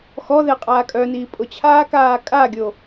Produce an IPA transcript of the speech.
xɔðe qʼaːkʼœniː pʼʊt͡ɕʰaːkaː kʼaɡʲo

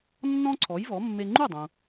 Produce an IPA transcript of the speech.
nːɔ̃˥ǀʰɔ˩˥jvɔ˩˥mːe˧ ŋ͡ǃu˥˩dˤũ˩

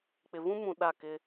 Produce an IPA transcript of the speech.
k͡pɪ˨vũ˦mũ˨ ɗa˦˨kɪ˦

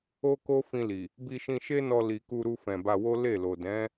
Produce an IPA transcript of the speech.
o˦ko˦ fĩ˧li˨ | bi˧ʃĩ˧ʃe˦nɔ˧ li˨ku˧ɾu˧ fɛ̃˨ba˧wo˦ le˦˨lo˨ dɛ̃˨˦

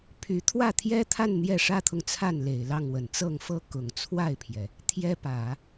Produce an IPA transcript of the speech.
pʰy˧˥ t̪ʰwä˥˩t̪ʰjɛ˥t̪ʰa˥˧n n̪jɛ˥˩ʂä˥t̪ʰʊ˨ŋt͡sʰa˥˩n le˨˩ɪ̯lɑ˥˩ŋwə˨˩n t͡sɤ˥˩ŋfɤ˥ kʊ˨˩ŋt͡sʰwa˥˩ɪ̯pʰjɛ˩ | t̪ʰjɛ˥ pä˨˩˦

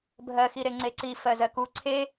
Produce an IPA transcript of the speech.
bʱɜxiɾe ŋ͡ǀeǀi fɜzɜku ǀʰe

